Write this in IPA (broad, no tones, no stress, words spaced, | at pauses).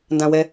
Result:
ndãwɛ